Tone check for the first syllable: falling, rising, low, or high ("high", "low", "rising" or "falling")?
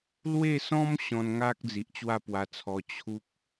falling